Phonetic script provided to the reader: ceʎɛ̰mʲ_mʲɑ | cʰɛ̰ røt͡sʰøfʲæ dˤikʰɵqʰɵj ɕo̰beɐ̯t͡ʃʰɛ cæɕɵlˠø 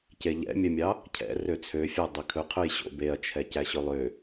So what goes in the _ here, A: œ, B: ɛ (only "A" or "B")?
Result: A